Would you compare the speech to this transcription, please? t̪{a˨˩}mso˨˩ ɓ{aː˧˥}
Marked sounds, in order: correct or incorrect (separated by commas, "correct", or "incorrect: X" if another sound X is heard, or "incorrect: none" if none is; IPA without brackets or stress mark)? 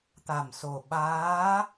correct, correct